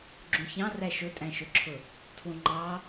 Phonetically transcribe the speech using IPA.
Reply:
ɡ͡ǁũçɑ̃ræ ʃʊtʼæ̃ʃʊǁʰʊ | tʰwũŋ͡ǃɑ

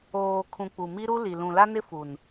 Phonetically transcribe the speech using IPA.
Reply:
oː˨kʰũ˨ k͡pu˨mi˦ ɾu˦li˨ lũ˨la˦nɪ˦ fu˨n

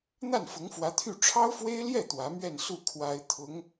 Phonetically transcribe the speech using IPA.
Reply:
n̪a˥˩nfʊ˧˥ŋfwä˧˥t̪ʰy˥˩ ʈ͡ʂʰɑ˥ʊ̯fwe˥ɪ̯ljɛ˥˩ t̪wä˧˥mɥɛ˥˧nsu˥˩ kʰwa˥ɪ̯ t̪ʰʊ˧˥ŋ

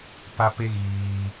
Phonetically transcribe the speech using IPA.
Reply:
pa˦pe˦ ɣiː˧

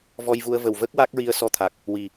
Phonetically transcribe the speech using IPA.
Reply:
vɔ˧jvu˧ə̯ və˨˩wvə˦˥k̚ wa˦˥k̚ɹi˧ə̯sɔ˧ t̪ʰa˨˩k̚ | wi˨˩

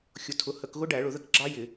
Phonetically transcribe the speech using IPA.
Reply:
xʲʊ˩˥ tʰʊ˩˥hə˧˩˧kɣʊ˦˥ ɖæ˧˩˧ɭʊ˧˩˧ðə˧k ɡ͡ǁɑ˦˥jɪ˧˩˧

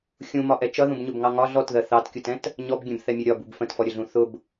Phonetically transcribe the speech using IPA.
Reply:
xʲũmɒʔɛ t͡ʃʌðũbɲʊbŋɑ ŋɒ ɮɔtðɜ θɑtkʲutɛ̃t | ɲɔbɡʲɛ̃bθɛmʲʌ ɾʲɒbub fə̃tfɔɾʲəɮũ θʊb

